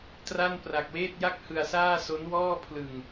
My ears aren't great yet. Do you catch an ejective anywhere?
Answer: no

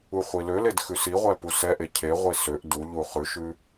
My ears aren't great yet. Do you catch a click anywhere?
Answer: no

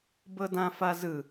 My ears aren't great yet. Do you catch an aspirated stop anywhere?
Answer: no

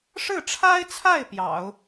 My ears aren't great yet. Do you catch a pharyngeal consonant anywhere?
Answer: no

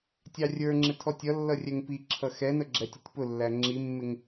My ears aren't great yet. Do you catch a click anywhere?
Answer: yes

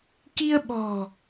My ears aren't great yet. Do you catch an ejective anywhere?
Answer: no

